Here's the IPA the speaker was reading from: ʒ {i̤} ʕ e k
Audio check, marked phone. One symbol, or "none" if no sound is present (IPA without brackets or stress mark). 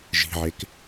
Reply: i̤